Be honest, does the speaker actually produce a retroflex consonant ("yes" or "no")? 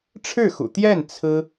yes